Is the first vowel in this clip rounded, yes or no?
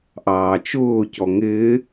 no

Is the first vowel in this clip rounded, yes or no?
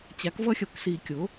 no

